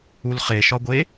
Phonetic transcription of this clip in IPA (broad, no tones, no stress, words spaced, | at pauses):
ulχeʃɒɡʷe